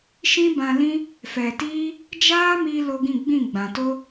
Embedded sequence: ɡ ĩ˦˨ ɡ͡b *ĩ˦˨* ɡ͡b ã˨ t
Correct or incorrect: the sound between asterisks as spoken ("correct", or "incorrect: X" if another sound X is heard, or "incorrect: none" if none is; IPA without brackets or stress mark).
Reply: correct